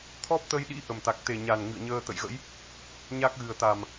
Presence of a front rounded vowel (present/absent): absent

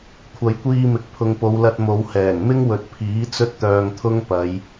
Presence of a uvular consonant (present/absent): absent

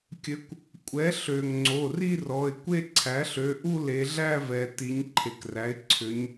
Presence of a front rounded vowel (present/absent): present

